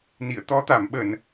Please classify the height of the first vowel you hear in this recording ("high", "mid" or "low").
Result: high